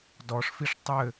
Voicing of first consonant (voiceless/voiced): voiced